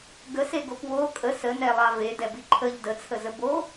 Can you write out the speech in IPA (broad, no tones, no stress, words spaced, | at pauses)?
ɡəseɡop wo kʼə sənɛlˠɑ vedɛbi ǃʰəʎ dət͡sʰəzə bo